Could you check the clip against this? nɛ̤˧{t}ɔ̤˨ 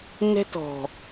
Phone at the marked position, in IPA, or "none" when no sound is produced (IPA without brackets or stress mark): t